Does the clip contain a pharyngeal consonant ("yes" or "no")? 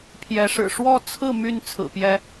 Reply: no